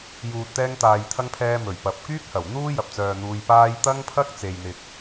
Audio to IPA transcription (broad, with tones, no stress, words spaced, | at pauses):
juː˨t̚t̪ɛː˧ŋt̪aː˨jt̪ʰɐ˧ŋ pʰɛː˥ mɵ˨˩ɥpɐ˨p̚ kyː˥k̚hɐ˨˩w n̪uː˥jɐ˨p̚t͡sœː˨ n̪uː˧jpaː˥j t̪ɐ˥ŋpʰɐ˥k̚ t͡se˨jn̪ɪ˨k̚